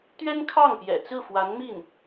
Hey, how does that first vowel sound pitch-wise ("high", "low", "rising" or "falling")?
high